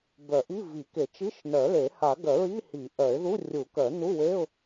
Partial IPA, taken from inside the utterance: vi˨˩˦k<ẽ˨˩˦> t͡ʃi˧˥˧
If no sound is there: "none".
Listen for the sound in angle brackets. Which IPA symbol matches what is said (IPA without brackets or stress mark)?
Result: e˨˩˦